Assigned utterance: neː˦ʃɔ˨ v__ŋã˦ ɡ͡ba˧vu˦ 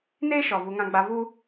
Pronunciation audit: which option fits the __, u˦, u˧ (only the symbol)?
u˧